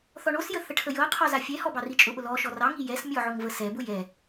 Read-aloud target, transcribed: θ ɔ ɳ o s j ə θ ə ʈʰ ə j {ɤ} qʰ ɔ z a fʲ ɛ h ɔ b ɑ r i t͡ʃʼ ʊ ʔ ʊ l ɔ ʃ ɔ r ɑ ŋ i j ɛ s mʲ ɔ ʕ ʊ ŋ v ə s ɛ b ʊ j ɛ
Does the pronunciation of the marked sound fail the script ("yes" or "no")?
no